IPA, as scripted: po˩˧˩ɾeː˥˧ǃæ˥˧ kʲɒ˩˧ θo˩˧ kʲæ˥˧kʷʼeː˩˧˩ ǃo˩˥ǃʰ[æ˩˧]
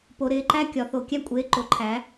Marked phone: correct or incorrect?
incorrect: æ˩˥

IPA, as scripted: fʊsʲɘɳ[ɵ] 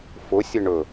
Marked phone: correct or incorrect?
correct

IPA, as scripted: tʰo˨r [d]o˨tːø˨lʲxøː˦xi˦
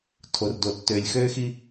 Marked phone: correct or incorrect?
correct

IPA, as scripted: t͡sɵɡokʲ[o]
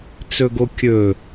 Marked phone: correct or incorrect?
incorrect: ɵ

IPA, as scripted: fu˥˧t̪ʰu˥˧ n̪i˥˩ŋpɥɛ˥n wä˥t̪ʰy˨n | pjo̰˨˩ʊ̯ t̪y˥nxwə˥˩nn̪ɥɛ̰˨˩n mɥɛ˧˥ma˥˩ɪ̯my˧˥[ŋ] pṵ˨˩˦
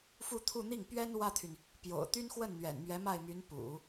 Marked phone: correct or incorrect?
incorrect: n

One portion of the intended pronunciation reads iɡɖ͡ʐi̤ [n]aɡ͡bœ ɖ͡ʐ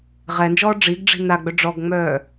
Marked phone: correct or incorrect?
correct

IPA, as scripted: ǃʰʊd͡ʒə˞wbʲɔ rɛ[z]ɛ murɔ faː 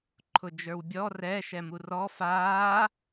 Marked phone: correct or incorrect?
incorrect: ʃ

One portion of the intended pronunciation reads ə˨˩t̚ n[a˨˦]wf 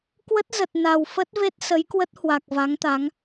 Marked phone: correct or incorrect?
incorrect: a˨˩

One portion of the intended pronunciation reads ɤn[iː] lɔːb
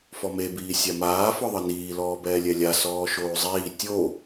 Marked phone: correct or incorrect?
correct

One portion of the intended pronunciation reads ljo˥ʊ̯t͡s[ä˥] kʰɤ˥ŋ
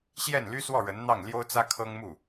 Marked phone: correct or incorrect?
correct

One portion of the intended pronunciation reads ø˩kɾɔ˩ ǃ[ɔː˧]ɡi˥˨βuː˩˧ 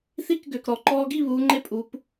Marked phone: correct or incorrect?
correct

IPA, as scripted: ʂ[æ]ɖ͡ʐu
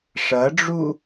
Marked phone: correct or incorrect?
incorrect: ɐ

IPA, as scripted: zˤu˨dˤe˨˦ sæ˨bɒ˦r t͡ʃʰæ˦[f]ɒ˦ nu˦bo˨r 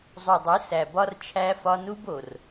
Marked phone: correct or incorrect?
correct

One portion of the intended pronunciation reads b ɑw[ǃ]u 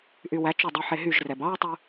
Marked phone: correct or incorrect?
incorrect: tˤ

